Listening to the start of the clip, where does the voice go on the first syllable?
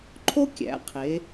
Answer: high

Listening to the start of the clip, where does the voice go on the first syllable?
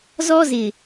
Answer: high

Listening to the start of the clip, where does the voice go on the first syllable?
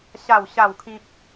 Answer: falling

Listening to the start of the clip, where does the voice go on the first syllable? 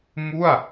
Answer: falling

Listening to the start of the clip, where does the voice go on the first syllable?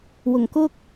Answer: low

